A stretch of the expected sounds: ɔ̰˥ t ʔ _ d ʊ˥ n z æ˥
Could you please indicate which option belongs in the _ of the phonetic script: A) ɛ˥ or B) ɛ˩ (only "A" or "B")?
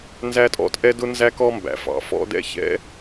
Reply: A